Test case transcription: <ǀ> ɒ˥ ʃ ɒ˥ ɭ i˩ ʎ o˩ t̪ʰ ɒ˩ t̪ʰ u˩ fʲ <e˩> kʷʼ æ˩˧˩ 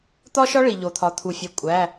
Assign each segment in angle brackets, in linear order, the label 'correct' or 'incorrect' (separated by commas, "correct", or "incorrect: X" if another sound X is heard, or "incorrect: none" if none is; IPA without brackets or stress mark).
incorrect: t̪, correct